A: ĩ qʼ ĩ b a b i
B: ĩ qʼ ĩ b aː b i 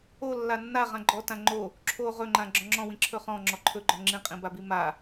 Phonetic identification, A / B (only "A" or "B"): A